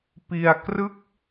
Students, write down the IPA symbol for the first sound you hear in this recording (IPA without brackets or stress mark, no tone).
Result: p